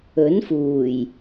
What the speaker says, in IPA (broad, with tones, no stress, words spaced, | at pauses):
ɵ˨˥nfuː˨˩j